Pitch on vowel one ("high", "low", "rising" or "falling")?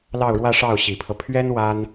falling